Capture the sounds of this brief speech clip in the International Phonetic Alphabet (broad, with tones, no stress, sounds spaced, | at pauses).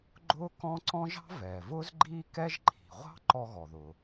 ɡ͡ǃ ʊː˥ k ɔ̃˥ ǀ ɔ̃˥ ʒ ɑ̤˥ v ɛː˩ v ʊː˥ z ɡ͡ǃ iː˥ k ɛ˥ ʒ ǃʰ i̤˩ ʁʷ ɑ̤˥ ǃ ɔ˥ ɣ ɔ˩ ð ʊ˩